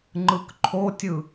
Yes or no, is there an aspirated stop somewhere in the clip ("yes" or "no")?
yes